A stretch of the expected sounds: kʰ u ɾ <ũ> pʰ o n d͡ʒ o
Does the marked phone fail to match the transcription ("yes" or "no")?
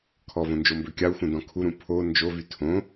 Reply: no